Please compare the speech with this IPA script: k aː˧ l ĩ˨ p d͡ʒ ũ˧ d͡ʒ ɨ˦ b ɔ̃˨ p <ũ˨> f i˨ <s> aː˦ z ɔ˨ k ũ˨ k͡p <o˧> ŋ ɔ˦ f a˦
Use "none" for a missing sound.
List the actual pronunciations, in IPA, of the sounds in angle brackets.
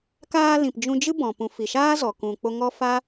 ũ˨, ʃ, o˧

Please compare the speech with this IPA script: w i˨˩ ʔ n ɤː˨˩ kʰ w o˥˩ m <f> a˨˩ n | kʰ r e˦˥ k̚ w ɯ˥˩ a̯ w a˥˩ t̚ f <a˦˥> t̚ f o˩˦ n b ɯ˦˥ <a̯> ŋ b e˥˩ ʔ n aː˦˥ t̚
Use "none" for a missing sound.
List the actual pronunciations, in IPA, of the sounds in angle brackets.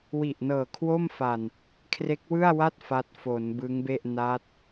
f, a˦˥, none

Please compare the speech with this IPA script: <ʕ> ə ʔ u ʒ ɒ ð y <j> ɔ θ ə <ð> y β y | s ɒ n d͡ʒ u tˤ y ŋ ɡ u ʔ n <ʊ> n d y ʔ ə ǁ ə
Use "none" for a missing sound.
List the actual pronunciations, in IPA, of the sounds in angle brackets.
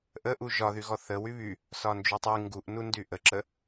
ʔ, ɣ, w, u

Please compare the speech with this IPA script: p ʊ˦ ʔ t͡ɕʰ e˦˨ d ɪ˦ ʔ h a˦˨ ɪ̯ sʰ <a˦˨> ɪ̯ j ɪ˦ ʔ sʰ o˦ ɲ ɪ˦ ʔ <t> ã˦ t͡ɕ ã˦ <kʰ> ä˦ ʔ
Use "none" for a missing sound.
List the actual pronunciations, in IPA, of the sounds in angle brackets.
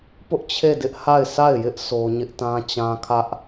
a˦˨, t, kʰ

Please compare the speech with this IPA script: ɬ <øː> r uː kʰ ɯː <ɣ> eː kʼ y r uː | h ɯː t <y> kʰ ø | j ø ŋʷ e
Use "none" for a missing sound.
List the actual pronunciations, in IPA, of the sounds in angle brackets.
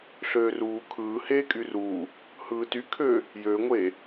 øː, h, y

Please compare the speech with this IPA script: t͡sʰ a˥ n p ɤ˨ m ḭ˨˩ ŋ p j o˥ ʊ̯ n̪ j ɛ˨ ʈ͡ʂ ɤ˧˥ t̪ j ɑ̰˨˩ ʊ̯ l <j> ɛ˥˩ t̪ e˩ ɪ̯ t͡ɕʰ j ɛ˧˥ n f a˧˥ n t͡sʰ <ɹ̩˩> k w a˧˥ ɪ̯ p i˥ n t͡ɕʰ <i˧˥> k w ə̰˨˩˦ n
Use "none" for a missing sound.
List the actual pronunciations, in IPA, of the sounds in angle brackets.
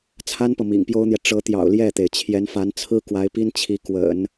j, ɹ̩˥, i˧˥

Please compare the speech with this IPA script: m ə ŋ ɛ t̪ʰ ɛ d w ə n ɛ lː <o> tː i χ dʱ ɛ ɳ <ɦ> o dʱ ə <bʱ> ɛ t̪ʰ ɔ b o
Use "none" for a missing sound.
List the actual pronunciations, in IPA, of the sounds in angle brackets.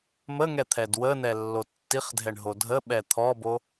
o, ɦ, ɓ

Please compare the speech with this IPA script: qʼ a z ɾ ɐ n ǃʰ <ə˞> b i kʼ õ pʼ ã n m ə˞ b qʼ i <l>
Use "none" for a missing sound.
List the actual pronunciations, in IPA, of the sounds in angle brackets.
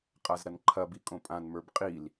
ɐ, l

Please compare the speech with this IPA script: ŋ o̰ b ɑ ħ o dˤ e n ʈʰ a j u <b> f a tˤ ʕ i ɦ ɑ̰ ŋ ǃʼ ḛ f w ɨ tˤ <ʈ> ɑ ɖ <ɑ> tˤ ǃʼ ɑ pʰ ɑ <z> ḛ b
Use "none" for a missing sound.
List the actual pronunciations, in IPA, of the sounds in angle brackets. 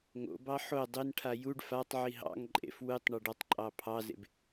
ɖ, ɳ, ɒ, z

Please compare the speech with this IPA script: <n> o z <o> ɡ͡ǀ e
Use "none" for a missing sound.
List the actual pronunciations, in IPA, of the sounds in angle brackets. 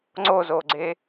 ŋ͡ǀ, o

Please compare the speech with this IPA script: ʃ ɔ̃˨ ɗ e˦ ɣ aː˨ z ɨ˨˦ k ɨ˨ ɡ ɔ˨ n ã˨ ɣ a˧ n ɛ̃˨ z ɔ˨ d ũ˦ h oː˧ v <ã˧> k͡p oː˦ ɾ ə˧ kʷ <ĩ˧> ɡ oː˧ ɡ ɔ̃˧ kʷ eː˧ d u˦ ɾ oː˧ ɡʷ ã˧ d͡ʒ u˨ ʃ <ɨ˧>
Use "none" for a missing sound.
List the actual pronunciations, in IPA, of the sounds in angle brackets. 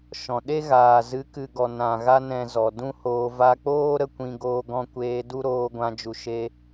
a˧, ĩ˧, e˧

